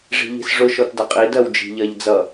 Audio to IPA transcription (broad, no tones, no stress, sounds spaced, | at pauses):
ʐ i̤ ʎ i̤ s ʐ ʊ ʃ ɔ t d ʌ qʼ i d ɜ w d͡ʒ i̤ ʎ ɜ ʎ d͡z ʌ